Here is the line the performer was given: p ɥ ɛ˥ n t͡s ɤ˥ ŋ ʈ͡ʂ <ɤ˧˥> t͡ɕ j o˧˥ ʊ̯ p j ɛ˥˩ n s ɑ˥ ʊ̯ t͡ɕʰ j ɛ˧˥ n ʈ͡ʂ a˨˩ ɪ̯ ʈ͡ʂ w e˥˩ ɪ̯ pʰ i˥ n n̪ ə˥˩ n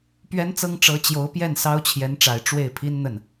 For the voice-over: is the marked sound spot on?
yes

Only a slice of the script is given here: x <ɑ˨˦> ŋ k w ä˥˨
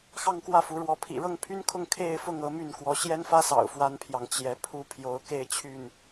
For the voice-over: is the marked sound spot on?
no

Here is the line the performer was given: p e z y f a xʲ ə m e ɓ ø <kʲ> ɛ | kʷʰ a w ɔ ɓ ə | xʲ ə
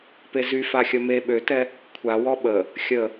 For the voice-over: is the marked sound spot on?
no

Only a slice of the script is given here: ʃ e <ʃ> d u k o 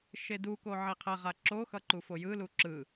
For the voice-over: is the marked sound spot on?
no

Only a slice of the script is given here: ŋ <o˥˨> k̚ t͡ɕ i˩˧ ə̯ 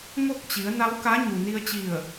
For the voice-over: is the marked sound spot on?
yes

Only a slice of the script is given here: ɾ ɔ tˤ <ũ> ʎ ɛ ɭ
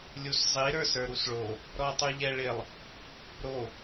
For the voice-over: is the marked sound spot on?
no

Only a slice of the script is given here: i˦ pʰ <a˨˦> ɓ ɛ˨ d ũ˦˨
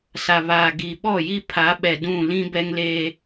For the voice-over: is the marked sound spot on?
yes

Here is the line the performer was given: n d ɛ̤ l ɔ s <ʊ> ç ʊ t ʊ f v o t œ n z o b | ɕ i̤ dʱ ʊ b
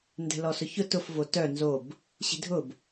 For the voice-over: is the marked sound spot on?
yes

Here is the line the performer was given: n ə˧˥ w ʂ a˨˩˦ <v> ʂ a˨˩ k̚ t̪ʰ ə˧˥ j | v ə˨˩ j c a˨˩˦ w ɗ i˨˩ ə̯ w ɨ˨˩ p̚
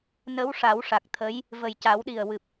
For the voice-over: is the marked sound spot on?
no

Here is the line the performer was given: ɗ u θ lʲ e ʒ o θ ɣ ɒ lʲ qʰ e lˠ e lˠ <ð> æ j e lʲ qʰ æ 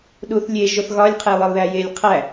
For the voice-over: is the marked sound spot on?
yes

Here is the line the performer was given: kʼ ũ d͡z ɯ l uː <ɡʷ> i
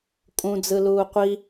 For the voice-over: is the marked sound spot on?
no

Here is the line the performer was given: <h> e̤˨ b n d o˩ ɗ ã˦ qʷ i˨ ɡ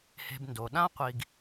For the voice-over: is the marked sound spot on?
yes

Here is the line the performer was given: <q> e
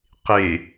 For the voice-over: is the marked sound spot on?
yes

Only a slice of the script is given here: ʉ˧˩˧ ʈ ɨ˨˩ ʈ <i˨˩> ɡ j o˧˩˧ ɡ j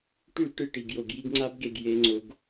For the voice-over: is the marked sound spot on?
yes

